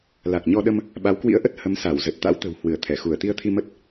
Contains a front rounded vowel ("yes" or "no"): no